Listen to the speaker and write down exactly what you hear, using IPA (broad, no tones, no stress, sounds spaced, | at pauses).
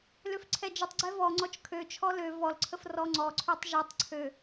l ø f ǀʰ ɛ d͡ʒ ə tˤ ɡ͡ǀ ɛ v ɔ ŋ͡ǀ ɔ t͡ʃ kʰ ø t͡ʃʰ ɔ l ø v ɔ l ǀʰ ə f r ɔ ŋ͡ǀ ɔ ǀʰ ø tˤ ʒ ɛ tˤ ǀʰ ø